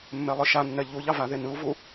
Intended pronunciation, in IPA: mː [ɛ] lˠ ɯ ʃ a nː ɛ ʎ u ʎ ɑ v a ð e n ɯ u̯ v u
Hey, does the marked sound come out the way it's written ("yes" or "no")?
yes